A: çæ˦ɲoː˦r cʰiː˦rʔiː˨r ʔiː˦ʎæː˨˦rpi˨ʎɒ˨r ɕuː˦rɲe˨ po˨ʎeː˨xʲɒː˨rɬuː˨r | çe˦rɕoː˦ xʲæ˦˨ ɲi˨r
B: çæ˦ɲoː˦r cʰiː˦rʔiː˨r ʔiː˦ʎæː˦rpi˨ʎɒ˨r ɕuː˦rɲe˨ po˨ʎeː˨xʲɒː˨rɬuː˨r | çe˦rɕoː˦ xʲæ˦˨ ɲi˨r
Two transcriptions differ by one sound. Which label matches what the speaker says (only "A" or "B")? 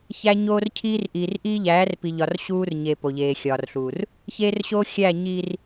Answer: A